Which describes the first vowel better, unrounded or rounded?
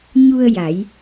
rounded